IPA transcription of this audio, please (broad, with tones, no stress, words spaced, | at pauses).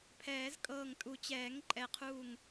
pʰɛː˨˩˦zkʼɤː˧˩ŋtʼu˨˩˦t͡ɕɛː˨˩˦ŋ ǃʼɛ˨˩˦qʰuː˧˩ŋ